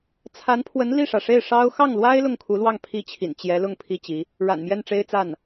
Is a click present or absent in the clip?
absent